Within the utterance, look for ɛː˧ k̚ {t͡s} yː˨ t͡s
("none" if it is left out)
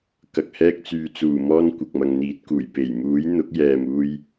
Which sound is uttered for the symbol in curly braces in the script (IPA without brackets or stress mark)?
t͡s